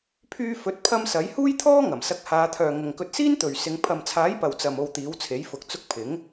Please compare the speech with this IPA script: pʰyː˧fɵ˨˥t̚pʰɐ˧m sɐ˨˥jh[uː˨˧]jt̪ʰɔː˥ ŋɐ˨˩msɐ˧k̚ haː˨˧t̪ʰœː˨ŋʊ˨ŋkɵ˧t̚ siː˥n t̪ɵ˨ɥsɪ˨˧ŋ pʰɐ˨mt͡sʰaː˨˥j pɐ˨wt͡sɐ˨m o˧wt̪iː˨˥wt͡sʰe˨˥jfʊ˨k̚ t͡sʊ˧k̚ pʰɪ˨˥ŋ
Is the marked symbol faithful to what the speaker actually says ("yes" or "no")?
no